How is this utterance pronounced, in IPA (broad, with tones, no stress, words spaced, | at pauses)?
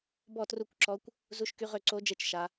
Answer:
bɔ˥˨tru˥˨kʷǁɔ˦˥kʷ | zu˦˥ʃky˦˥ʁø˥˨ ǀo˦˥d͡ʒe˥˨t͡ʃ ʃa˦˥